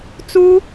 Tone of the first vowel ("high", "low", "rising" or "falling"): high